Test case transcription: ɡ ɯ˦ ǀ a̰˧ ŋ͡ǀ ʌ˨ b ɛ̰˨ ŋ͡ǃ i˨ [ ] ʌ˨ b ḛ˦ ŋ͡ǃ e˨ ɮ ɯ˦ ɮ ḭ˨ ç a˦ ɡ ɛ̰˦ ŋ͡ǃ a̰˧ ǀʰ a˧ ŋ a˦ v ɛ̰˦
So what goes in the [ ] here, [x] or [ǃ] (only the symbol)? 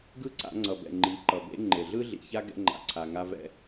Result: ǃ